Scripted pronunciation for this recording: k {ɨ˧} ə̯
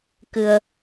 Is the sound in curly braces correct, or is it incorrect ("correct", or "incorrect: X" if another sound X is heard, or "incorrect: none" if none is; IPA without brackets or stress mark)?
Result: correct